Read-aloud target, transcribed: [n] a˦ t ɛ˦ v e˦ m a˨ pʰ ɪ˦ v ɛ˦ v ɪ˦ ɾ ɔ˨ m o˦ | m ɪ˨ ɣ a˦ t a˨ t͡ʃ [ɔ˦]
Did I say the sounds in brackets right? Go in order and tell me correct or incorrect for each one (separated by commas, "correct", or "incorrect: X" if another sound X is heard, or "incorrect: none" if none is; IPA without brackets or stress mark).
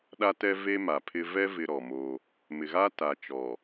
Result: incorrect: ɗ, incorrect: ɔ˨